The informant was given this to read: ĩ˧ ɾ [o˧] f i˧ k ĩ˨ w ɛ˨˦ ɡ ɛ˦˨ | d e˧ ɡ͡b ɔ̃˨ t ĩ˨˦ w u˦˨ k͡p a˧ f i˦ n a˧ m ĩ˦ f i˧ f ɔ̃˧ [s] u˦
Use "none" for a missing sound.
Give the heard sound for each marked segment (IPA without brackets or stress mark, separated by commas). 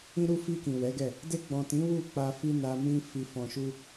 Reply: u˧, ʃ